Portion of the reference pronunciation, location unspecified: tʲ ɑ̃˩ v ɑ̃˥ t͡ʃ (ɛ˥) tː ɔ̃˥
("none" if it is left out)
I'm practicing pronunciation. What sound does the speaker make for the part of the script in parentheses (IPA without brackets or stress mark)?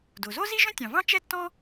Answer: ɛ˥